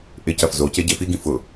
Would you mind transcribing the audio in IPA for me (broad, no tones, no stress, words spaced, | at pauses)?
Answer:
ʔɪcɐf zo ceɟefiɡĩ fʊ